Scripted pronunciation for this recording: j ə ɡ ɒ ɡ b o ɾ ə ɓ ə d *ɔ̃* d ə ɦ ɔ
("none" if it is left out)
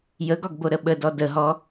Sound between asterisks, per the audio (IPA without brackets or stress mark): ɔ